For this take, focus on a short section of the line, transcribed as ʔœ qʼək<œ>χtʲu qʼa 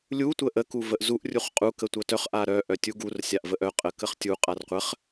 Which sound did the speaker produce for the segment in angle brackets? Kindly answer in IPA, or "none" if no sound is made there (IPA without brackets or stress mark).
ə